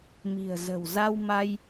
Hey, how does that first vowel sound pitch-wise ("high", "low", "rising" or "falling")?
low